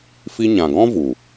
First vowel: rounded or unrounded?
unrounded